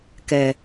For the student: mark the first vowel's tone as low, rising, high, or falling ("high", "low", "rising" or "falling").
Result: low